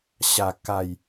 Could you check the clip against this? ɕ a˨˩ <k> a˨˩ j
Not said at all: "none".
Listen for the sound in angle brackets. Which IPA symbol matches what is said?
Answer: k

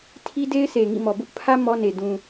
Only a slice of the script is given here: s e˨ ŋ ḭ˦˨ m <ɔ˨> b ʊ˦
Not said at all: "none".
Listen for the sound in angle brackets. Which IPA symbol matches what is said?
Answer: ɔ˨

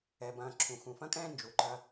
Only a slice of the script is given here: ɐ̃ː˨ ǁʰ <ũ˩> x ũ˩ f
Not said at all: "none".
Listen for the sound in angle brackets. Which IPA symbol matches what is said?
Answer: ũ˩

